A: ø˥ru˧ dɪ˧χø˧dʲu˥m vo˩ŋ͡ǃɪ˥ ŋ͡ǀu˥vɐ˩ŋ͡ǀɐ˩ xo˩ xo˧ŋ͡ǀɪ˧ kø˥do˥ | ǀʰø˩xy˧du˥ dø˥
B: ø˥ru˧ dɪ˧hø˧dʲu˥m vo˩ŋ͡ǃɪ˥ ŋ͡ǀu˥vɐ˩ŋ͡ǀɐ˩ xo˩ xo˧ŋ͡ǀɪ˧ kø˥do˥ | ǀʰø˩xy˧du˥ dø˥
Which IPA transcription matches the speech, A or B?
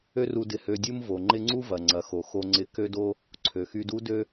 B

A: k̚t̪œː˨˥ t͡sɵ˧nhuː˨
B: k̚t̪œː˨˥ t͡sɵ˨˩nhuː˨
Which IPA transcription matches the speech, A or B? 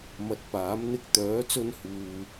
A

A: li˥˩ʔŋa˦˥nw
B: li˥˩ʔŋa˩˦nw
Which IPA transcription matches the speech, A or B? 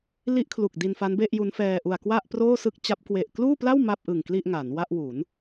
B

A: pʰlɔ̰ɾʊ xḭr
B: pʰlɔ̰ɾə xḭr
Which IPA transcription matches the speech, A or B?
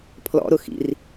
A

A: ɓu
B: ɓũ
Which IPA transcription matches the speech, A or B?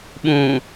B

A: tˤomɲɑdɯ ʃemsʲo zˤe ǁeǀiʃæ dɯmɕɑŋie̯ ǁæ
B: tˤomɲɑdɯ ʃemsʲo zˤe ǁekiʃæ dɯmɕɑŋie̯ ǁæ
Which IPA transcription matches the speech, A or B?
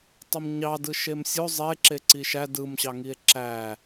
A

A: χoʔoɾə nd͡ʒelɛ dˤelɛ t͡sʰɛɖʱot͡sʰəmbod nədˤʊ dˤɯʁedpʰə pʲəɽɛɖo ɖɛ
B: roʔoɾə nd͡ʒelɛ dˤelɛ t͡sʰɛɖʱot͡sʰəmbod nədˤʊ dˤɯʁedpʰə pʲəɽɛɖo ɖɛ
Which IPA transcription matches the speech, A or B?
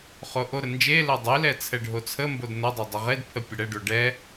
A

